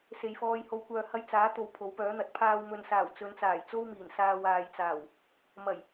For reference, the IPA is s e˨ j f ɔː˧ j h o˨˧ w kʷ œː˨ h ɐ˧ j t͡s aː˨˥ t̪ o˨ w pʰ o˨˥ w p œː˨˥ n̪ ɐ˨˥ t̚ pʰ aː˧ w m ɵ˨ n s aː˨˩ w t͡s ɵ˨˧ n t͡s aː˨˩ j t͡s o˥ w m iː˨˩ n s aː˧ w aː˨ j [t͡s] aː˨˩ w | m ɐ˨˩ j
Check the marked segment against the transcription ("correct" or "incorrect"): correct